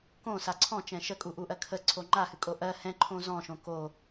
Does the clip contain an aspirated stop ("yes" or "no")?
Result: yes